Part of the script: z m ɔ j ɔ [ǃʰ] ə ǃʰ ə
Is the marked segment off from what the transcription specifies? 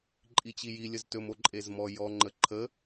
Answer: yes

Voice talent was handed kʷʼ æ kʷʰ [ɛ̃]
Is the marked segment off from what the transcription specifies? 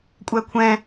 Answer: no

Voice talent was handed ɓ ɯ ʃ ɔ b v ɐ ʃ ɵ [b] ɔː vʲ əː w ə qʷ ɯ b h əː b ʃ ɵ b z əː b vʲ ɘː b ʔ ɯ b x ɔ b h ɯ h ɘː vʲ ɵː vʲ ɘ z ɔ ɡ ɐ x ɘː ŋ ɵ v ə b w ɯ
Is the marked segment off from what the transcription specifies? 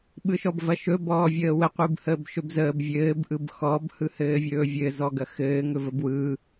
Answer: no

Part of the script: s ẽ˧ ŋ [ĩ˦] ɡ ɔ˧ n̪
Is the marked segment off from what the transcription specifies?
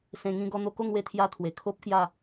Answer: no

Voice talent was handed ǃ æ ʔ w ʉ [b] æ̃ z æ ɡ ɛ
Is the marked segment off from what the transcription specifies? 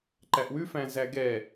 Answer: yes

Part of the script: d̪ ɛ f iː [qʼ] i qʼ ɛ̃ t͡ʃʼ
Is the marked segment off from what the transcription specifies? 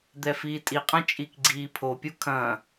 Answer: yes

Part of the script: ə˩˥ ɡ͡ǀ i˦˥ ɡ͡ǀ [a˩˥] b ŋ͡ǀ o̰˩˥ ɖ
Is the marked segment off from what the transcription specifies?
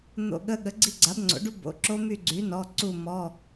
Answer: no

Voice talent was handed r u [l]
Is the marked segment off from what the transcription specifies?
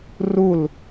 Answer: no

